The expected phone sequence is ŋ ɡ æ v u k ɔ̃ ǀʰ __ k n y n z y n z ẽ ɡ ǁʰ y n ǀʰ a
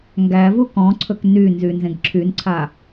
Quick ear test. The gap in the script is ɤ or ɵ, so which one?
ɵ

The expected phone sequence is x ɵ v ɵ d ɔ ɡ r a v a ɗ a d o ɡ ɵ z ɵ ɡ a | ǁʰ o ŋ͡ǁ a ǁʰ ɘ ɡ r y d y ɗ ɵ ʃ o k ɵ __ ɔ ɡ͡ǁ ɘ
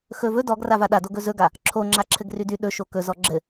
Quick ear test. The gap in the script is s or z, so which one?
z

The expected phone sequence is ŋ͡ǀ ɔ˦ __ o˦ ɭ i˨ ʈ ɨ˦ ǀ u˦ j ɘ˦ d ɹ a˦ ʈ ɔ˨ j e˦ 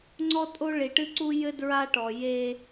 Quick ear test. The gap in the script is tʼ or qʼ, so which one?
tʼ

